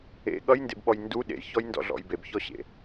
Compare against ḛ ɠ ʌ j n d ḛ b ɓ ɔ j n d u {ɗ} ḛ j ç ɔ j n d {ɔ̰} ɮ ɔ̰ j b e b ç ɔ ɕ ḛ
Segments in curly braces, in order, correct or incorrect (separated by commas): correct, correct